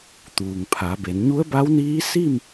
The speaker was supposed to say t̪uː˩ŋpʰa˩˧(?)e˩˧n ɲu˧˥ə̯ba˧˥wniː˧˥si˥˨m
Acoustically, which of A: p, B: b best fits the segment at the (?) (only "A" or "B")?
B